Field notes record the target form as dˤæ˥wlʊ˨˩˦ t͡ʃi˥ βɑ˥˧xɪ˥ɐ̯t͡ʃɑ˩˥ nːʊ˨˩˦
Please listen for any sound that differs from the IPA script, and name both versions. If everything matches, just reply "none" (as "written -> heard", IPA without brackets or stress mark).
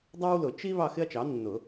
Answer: none